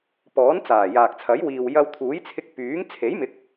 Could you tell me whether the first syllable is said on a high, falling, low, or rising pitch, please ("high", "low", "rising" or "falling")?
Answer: rising